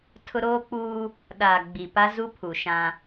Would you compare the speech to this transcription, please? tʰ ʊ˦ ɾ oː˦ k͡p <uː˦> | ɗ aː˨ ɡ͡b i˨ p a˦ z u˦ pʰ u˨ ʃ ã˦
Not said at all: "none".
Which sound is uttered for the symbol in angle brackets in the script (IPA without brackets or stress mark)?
uː˦